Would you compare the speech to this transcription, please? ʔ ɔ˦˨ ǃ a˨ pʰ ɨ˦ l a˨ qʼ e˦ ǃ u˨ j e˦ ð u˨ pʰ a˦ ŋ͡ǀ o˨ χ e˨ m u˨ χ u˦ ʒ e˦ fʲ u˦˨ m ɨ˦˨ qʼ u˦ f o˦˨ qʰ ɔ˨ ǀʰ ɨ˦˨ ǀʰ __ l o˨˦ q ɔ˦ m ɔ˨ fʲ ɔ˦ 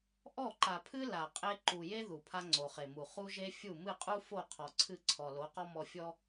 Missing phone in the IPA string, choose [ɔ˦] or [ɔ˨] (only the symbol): ɔ˨